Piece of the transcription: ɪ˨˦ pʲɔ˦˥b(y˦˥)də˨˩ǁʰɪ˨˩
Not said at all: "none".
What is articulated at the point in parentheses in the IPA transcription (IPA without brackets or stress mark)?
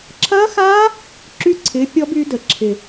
y˨˦